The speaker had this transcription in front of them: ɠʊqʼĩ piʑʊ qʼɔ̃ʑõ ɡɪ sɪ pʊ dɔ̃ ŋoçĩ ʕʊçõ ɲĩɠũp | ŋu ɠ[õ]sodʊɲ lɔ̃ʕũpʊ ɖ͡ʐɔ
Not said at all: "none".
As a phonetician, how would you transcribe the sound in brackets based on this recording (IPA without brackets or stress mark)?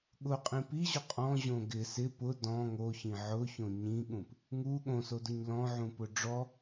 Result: õ